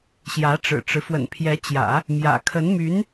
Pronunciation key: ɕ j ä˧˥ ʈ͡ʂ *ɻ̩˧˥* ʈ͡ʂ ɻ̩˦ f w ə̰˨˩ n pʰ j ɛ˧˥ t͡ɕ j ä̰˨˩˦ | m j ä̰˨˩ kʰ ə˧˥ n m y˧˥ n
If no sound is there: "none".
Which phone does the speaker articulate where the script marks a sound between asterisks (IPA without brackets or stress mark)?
ɻ̩˨˩